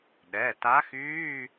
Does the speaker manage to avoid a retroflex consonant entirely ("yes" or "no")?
yes